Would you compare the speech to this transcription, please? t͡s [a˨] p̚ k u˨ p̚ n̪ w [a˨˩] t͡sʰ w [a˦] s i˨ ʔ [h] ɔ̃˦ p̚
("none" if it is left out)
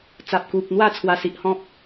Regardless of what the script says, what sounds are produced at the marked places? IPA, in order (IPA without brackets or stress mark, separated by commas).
a˨, a˥˧, a˨˩, h